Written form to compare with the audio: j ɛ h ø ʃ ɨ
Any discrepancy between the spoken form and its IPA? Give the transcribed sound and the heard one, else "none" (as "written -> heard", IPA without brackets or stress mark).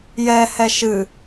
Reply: ø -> ɛ